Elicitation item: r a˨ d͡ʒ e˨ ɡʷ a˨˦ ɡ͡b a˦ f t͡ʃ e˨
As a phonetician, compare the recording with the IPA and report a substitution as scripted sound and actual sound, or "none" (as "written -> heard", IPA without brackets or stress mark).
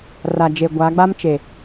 f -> m